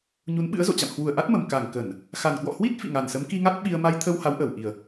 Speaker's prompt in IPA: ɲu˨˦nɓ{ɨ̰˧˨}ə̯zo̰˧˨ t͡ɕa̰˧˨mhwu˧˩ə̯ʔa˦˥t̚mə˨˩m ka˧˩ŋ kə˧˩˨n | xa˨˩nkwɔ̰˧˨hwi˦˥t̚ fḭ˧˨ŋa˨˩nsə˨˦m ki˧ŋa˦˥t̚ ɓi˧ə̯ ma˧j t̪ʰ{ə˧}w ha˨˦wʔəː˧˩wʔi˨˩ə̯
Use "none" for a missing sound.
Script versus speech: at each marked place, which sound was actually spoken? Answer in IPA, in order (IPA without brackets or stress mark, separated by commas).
ɨ̰˧˥, ə˧